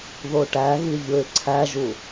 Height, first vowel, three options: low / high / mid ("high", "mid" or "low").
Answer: mid